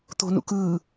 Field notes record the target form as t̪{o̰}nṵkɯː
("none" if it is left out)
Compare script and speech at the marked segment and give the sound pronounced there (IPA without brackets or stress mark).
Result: o̤